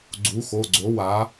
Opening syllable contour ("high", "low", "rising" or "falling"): rising